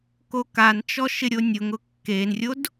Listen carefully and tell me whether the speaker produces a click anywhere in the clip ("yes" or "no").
no